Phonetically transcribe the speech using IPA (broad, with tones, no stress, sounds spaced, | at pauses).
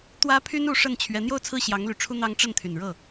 t̪ w ä˥ pʰ y˥ n u˧˥ ʂ ə˥˩ n t͡ɕʰ ɥ ɛ˧˥ n̪ j o˥˧ ʊ̯ t͡sʰ ɹ̩˥˩ ɕ j ɑ˧˥ ŋ l y˨˩ ʈ͡ʂʰ u˥ n̪ ɑ˥ ŋ ʈ͡ʂ ə˥˩ n t̪ʰ y˨˩ n ɻ ɤ˥˩